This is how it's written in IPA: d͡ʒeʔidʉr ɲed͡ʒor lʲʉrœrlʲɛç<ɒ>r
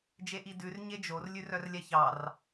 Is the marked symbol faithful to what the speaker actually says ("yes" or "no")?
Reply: no